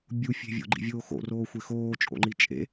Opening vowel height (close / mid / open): close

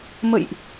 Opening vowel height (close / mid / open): mid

